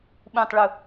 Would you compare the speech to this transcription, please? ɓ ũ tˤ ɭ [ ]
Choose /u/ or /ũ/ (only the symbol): u